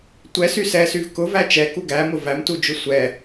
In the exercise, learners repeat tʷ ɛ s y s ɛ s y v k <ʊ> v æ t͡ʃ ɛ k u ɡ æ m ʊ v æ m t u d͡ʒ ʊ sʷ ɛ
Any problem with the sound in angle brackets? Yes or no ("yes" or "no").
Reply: no